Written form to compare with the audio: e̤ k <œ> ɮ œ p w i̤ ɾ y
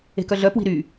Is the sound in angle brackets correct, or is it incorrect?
correct